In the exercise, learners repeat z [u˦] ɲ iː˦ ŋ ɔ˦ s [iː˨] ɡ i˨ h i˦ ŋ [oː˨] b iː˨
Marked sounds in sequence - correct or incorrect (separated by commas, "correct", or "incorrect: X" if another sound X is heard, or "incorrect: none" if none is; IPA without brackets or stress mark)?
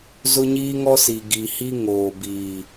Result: incorrect: ʊ˦, incorrect: i˨, correct